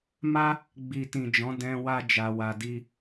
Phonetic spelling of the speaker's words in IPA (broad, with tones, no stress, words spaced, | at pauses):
ma˦ | ɡ͡bi˨tĩ˨d͡ʒɔ̃˨˦ dɛ̃˧ wa˦ d͡ʒa˧wa˧di˦